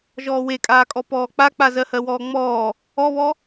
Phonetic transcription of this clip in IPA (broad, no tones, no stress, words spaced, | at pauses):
ʒɔːwekʼaːkʼɔ pɔːk͡pak͡pa zɜhɜwɔːŋ͡mɔː | ɔβɔ